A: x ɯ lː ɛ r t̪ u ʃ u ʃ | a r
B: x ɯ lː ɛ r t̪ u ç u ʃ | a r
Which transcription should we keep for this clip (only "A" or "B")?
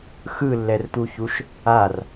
B